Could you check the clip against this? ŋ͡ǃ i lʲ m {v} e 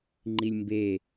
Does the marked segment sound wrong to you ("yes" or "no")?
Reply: yes